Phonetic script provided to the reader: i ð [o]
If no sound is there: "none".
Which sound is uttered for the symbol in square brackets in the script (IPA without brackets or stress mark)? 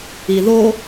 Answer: o